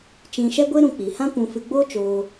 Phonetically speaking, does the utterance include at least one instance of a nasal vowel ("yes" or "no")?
yes